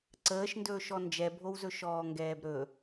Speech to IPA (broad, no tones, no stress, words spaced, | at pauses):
ǀəːʃndɵːʃɔ nd͡ʒɛbʱowzɵ ʃɔːŋɡɛːbɾɵ